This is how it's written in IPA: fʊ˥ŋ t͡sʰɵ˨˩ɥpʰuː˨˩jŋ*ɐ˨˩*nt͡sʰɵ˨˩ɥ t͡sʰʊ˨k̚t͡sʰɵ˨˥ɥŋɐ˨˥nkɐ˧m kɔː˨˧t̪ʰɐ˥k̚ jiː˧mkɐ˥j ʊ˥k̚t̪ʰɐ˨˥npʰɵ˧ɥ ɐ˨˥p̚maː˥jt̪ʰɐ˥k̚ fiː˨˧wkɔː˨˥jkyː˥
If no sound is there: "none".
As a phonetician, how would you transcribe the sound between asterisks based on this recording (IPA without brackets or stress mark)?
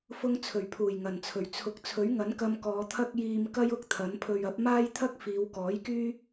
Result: ɐ˨˩